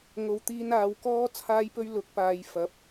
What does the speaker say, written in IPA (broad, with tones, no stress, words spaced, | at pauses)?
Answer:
ŋo˨˧wt̪iː˧n aː˨˧wkɔː˥ t͡sʰaː˥jpɵ˥ɥ lʊ˨˥k̚paː˨˧jfɐ˨˥p̚